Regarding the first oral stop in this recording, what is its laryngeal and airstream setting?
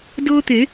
plain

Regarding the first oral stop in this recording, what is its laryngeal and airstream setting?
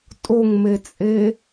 ejective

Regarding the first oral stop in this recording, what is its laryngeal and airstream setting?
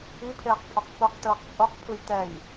aspirated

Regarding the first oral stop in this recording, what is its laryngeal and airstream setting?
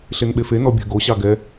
implosive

